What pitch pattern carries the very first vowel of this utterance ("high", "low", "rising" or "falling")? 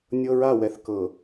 high